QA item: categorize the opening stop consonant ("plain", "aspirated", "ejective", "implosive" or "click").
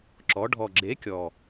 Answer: click